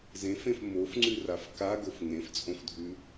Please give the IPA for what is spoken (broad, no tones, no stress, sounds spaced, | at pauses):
z ẽ f ẽ f m o f ŋ͡ǀ ʉ r a f k a ɡ o f ŋ ẽ f t͡sʼ õ f dʱ ʉ